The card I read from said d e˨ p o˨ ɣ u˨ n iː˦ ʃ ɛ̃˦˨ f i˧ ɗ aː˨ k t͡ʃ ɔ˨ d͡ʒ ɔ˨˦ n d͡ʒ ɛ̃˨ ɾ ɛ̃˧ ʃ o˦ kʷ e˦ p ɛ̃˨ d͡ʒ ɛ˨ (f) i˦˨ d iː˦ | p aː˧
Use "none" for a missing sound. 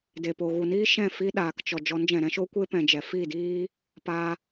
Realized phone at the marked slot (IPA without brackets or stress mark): f